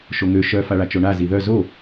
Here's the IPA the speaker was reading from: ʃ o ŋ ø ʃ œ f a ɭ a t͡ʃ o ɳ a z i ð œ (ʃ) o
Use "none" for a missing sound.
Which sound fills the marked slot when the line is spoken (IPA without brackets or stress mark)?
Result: z